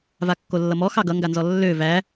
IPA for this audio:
v a kː o lː ʌ m ɔ x ɑ ɡ ʌ ŋ ɡ a n z ɔ lː ø v æ

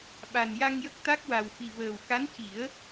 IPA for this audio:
ɓ a˨˩ n j a˧ ŋ j ə˦˥ k̚ t̪ a˦˥ k̚ w a˨˩ w f i˨˩ v əː˨˩ w k a˧˥ n c i˨˩˦ ə̯

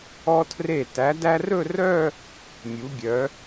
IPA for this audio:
ɔ˧ tʰ r e˧˩ t æ˩˧ d æ˧ r ɵ˥˧ r œ˥˧ | mʲ u˩˧ ɡʲ œ˩˧

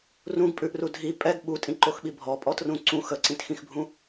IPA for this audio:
r ũ ɡ pʼ ʉ ʔ r u dʱ i pʼ ɛ ɡ ɓ u tʼ ĩ ǃ o x ɓ i bʱ ɔ pʼ ɔ t r ũ ǀ ũ x ə ǀ ĩ t x ĩ x bʱ ũ

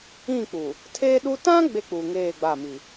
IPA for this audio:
ĩ˦˨ k͡p u˨ | tʰ eː˦ ɗ u˦ t ã˦ ɡ͡b e˦ k͡p uː˨ ŋ eː˦˨ ɡ͡b a˦˨ m i˨

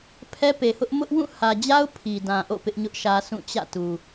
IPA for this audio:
pʰ ɛ˦ p e˨ h ʊ˦ ʔ m ʊ˦ ʔ w ũ˦˨ h ä˨ d͡ʑ a˦ ʊ̯ pʰ i˨ d ã˨ ʔ o̰˦˨ p ɪ˦ ʔ ɲ ʊ˦ ʔ ʃ ä˦ s ũ˦˨ t͡ɕ ä̰˦˨ t u˨

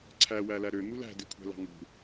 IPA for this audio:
ǀʰ æ w æ l æ ɾ ø n̪ u l æ̤ d e kʷʰ æ̤ l ɑ̤ ŋ ṳ

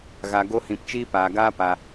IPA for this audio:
ɣ a˨ ɡ o˧ h ĩ˨ p t͡ʃ iː˦ p aː˨ ɡ aː˦ p a˨

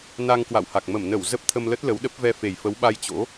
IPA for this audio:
n a˧ ŋ k w a̰˧˨ w h a˨˩ k̚ m ə˧˩ m n ə˧˩ w z ə˦˥ p̚ t̪ʰ ə˧ m l ə˦˥ t̚ l ə˨˦ w ɗ ə˦˥ p̚ v ɛ˧ f e˨˩ j f ə˨˦ w ɓ a˧ j t͡ɕ o̰˧˥

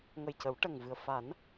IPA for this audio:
ŋ ə˨˩ j c ə˨˩˦ w ʈ ə˨˩ ŋ v ɨ˨˩ ə̯ f a˨˩˦ n

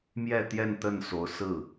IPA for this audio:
m j ɛ˥˧ t̪ j ɛ˥˧ n t̪ ə˥˩ n s o˧˥ ʊ̯ s ɹ̩˥˩

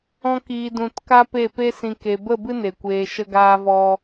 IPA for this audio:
ɔ̃˦ k iː˧ d ũ˧ t k a˦ p e˦˨ p e˦ s ĩ˧ k e˧ b ə˦˨ b ɨ˦ n e˨ kʷ eː˧ ʃ ə˦ ɡ aː˦ v ɔ˦

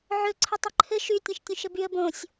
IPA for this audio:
ʕ ɵ ǀʰ ɘ tˤ ɵ ǃʰ ɘ ʃ y tʲ ɛ̃ ʃ tʲ õ ʃ ɘ b y ə̯ b õ sʲ

